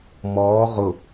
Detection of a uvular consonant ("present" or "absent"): present